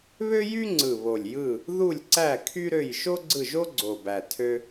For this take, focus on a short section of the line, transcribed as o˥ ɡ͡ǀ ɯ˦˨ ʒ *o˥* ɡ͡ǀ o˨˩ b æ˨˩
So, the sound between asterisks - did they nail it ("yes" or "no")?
yes